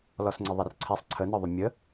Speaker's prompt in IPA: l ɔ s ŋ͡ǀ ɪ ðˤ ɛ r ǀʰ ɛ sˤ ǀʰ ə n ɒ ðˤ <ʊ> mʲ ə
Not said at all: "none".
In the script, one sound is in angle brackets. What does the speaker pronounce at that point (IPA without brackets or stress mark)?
ʊ